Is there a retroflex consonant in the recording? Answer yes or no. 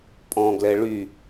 yes